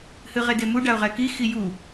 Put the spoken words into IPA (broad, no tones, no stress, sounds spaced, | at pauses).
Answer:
h ɨ ʁ e d e m u ɖ a ʊ̯ ʁ ɛ k i x i j u